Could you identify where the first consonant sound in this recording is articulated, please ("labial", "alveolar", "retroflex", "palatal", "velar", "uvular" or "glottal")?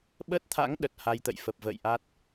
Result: labial